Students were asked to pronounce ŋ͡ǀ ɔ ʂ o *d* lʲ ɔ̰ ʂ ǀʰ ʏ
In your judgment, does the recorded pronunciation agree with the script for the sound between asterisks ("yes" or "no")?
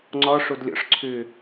yes